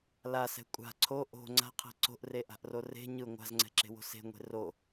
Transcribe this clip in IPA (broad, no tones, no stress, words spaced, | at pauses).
lasɛ̤ kʷʼa̤ ǀʰo ʔo̤ ŋ͡ǀa̤qʰɛ̤ ǀo̤ʔreʔa̤ʔro re̤ ɲɯ ŋʷa̤zŋ͡ǀɛ̤ǁe̤wo̤ se̤ŋʷe̤ ro